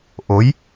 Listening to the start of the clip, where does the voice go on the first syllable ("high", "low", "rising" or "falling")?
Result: rising